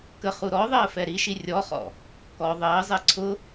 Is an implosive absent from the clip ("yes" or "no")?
yes